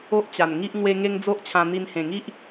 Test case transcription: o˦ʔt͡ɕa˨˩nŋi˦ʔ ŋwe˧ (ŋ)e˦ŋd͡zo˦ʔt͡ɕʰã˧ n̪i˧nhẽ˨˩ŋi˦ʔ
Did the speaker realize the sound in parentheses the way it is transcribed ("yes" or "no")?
yes